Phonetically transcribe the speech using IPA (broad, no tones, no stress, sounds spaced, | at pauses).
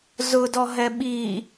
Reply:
z ʊ d ɔ ɦ ɛ ɓ i